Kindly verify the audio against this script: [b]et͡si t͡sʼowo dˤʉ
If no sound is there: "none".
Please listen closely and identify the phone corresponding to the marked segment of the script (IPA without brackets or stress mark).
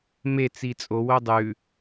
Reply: m